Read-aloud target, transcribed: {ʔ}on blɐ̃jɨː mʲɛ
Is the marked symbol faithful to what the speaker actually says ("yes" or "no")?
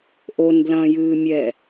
yes